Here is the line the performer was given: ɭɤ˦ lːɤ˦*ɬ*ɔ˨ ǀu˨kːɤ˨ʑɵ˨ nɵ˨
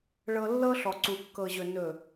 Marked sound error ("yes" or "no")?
no